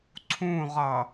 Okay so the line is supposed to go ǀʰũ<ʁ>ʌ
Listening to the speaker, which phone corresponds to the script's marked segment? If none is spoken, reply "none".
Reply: ʁ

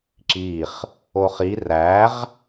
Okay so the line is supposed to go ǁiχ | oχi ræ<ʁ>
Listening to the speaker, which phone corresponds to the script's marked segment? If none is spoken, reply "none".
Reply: ʁ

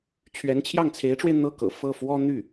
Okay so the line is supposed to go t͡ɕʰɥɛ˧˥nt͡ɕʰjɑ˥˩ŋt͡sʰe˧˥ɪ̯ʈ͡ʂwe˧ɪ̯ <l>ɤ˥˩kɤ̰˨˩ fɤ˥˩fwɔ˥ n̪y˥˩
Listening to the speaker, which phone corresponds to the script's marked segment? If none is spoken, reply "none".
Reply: n̪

